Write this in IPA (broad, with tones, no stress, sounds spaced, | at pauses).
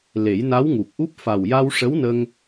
l e˨˩˦ j n a˧˥ w ŋ u˨˩ k̚ ʔ u˦˥ p̚ f a˨˩ w j a˧ w ʂ ə˧˥ w n ə˧ ŋ